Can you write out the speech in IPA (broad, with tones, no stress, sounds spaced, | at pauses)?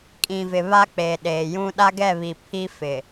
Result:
kʼ ĩ˨ v ɪ˨ β a˦ k͡p eː˨ ɗ eː˨ j ũ˦ ɗ a˦ ɡ ɛ˦˨ β i˨ pʰ i˦ f ɪ˨